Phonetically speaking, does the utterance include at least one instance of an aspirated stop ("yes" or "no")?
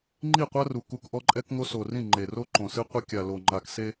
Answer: no